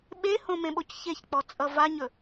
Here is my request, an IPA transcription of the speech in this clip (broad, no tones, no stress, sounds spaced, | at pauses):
ɓ e h õ m ẽ ɓ o c ç e ç k͡p ɔ t͡sʼ ʌ v a ɲ ɵ